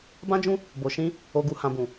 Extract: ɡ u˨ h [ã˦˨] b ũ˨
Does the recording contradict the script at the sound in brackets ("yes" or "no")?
yes